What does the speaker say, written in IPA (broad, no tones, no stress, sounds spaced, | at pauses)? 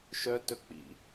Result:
ʃ œ t ɵ k͡p ḭ